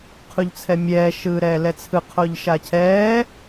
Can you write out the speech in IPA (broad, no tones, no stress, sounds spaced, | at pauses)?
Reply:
qʰ u ʎ t͡sʰ ɛ mʲ ɛː ʃ ɯː ɾ ɛː l ɛ t͡sʰ ɯ qʰ o ʎ ʃ a cʰ ɛː